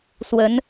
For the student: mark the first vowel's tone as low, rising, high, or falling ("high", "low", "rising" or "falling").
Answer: rising